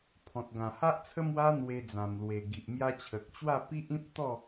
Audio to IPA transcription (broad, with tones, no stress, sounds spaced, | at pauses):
pʰ ɔ̃˨ t̚ ɡ ã˨˩ h a˦ ʔ t͡sʰ ə˦ m w a˦ n̪ w e˧ d͡z ã˨˩ m l w e˨˩ ɡ i˨ ʔ m j a˧ t͡ɕʰ ə˨ k̚ t͡ɕ w a˥˧ p i˦ ʔ ĩ˦ p̚ t̪ ɔ˥˧